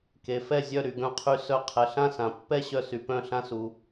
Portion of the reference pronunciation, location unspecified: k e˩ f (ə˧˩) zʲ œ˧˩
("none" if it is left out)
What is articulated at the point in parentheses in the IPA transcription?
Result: ɛ˧˩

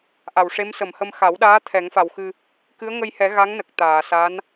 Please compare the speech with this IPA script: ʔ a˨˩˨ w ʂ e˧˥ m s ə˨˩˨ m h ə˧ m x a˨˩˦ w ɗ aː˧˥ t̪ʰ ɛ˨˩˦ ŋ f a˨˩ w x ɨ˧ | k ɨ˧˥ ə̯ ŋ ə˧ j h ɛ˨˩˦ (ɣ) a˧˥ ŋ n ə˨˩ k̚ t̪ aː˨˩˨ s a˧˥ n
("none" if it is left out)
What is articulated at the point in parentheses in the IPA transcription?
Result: ɣ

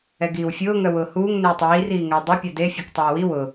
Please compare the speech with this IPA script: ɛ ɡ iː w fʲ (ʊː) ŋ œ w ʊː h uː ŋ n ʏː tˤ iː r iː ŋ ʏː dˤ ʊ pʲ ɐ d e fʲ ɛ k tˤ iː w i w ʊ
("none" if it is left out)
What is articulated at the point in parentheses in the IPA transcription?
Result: ʊː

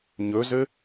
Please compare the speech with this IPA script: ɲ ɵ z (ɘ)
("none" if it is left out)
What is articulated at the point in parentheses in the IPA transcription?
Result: ɘ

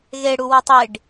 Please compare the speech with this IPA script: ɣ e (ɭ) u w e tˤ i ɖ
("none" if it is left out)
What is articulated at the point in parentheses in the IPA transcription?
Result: ɽ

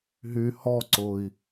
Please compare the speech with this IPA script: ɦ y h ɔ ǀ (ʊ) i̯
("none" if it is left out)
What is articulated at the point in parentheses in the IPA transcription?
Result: ʊ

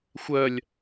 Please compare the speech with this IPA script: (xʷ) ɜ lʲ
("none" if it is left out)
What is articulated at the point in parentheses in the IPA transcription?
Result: xʷ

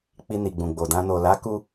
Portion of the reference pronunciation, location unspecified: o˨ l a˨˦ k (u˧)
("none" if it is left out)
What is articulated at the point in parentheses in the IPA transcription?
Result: u˧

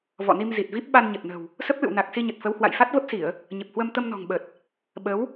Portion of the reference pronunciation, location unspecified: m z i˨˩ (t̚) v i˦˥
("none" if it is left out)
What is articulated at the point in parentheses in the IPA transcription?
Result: t̚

